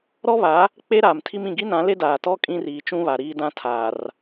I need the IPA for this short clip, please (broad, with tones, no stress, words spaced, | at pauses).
ɾɔ˦βa˨˦ | k͡pe˦ɾaː˨mtʰi˦m ĩ˨ɡi˦nã˨˦le˦ daː˨tɔ˦ kʼĩ˦riː˨t͡ʃũ˦βa˨ ɾiː˦dã˦ tʰaː˨r